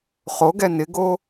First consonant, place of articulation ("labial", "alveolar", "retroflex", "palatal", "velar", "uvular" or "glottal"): uvular